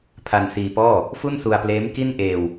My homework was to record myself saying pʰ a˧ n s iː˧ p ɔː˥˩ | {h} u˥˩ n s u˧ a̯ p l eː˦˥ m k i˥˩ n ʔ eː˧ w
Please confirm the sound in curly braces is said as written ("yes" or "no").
no